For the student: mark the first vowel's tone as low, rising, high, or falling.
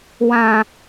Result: low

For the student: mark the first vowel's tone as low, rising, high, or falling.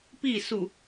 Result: falling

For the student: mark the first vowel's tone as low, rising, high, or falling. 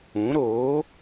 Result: rising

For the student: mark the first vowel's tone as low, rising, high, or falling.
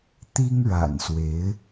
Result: high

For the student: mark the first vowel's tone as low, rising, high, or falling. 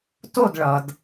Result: falling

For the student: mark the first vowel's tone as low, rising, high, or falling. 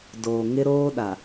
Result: low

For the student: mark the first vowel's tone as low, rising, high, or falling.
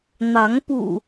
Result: rising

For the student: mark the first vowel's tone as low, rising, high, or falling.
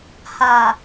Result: low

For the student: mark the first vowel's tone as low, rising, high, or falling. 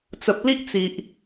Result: low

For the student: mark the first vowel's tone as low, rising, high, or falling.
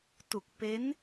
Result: low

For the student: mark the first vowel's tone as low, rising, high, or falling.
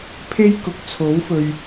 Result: high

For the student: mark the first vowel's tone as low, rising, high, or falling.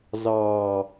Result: low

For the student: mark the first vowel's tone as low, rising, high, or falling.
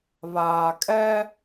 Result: low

